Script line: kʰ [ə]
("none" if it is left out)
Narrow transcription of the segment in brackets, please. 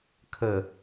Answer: ə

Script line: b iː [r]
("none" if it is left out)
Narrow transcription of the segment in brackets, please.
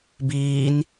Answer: n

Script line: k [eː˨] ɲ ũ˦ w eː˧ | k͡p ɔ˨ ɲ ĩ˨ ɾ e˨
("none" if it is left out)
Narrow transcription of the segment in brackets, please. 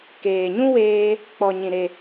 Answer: eː˨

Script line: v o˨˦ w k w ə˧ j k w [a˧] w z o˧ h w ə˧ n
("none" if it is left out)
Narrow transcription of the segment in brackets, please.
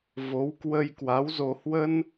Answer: a˨˦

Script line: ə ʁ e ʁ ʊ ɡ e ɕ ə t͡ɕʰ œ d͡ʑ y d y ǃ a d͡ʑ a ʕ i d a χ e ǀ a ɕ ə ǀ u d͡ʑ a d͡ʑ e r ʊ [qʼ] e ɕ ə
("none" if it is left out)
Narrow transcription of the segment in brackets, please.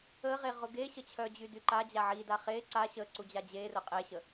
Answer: qʼ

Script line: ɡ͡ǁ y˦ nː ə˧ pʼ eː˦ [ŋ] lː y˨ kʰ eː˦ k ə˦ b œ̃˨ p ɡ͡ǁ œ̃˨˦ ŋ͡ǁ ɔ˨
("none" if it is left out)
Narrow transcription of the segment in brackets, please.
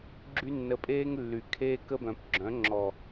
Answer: ŋ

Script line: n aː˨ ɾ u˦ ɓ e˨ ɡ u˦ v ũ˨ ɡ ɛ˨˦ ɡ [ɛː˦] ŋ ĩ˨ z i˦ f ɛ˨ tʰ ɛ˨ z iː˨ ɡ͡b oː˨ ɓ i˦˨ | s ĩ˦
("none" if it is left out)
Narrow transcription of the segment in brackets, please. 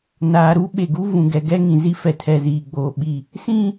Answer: ɛ˦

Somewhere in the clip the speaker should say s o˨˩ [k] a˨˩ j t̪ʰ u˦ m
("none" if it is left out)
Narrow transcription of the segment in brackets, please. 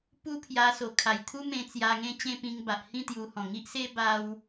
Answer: kʰ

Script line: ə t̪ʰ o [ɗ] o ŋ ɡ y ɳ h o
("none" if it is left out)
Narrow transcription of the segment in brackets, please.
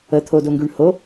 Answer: d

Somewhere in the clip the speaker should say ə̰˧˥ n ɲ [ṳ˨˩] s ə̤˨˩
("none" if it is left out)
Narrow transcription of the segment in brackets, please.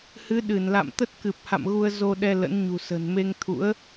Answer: ṳ˨˩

